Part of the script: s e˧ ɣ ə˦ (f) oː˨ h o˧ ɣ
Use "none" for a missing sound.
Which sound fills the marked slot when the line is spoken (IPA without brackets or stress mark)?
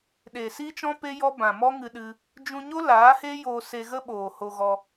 ɓ